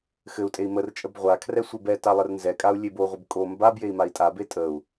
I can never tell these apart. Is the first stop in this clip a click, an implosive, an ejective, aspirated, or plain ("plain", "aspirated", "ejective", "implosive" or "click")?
ejective